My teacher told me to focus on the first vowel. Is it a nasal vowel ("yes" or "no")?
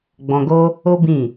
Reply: yes